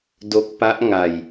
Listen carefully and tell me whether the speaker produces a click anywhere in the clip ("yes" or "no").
no